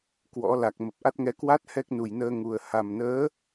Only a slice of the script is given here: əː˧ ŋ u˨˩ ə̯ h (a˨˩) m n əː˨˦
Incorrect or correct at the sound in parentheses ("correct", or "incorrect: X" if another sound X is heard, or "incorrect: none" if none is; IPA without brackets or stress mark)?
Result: correct